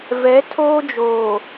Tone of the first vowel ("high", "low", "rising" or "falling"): rising